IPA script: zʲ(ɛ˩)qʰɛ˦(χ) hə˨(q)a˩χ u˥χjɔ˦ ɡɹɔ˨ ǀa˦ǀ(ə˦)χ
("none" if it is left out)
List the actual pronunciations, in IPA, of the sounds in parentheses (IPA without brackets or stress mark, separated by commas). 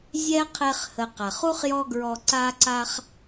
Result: ɛ˥, χ, q, a˦